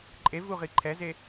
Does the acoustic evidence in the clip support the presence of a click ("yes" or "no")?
yes